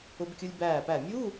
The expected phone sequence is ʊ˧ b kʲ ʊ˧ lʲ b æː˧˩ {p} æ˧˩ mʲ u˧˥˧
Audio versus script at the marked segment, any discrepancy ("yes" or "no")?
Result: no